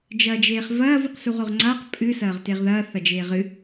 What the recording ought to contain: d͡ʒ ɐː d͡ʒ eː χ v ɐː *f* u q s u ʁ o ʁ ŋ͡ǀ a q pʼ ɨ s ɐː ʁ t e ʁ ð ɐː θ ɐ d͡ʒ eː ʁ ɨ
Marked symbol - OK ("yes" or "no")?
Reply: no